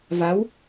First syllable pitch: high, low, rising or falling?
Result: rising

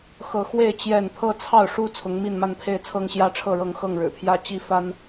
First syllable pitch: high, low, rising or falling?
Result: rising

